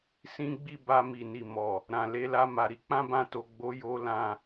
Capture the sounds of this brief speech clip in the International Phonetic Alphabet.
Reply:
sĩ˦ɡ͡bi˦˨ ba˧ mi˨ni˨ mɔ˨ | ɾã˨ le˨˦la˧ma˨ ɾi˨˦ k͡pã˦bã˧to˨ɡ͡bo˨˦ jo˦lã˦˨

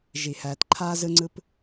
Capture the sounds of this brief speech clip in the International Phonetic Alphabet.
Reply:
ʒi˨ hæː˨tǃʰaː˦zɯ˦ŋ͡ǀɯ˦p

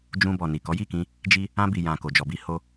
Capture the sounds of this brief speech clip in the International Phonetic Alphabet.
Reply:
d͡ʒũ˧bɔ˨ ni˨kɔ˨˦ji˦˨kĩ˧ | d͡ʒi˦ | ã˧bi˨jã˨ ko˨d͡ʒɔ˨bi˧ ho˧

